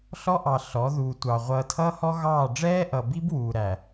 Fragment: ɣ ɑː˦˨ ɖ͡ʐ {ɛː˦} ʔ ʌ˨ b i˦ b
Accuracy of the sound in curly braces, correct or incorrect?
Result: correct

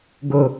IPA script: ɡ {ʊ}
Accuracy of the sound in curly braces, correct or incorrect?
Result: correct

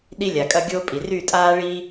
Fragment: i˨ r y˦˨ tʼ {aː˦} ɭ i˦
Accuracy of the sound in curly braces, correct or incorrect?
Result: correct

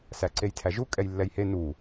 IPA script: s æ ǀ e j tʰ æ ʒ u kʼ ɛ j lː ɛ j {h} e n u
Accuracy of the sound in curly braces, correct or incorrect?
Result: correct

